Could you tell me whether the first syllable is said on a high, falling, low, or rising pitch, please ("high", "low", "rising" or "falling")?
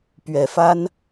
low